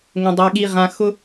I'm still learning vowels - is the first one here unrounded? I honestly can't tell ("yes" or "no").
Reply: yes